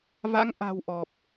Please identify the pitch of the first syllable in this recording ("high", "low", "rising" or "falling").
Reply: rising